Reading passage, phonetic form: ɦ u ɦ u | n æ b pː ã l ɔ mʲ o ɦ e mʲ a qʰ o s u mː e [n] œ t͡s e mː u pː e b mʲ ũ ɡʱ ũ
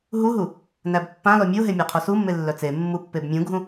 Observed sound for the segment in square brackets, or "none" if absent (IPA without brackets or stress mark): lː